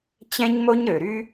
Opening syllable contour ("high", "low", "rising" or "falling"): high